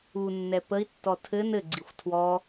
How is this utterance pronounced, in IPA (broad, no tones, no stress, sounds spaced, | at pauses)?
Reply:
u nː ɛ p ə i̯ tː ɔ tʰ ɘ n ɘ ɡ͡ǀ i xʷ tʰ w ɔ